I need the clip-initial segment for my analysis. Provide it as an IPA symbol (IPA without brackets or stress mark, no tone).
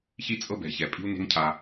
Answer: ç